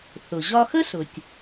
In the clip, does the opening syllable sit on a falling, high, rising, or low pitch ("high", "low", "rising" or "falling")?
low